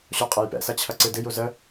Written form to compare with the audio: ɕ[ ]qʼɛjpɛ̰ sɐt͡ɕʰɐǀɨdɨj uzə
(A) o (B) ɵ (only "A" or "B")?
A